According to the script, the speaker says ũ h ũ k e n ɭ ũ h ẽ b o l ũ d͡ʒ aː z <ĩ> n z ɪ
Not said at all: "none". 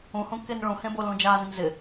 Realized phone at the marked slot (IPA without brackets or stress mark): ĩ